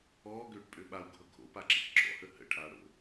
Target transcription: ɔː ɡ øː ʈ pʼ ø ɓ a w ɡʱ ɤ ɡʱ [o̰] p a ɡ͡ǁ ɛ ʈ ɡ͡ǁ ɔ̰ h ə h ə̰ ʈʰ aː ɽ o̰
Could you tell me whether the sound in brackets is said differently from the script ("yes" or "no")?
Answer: no